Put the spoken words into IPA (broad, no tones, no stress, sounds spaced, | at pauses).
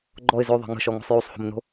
ɡ͡ǃ ɔ ɪ̯ z ø ðˤ ɛ̤ ŋ ə̤ ʃ ɔ ŋ o̤ sˤ j u sˤ h o̤ m n o̤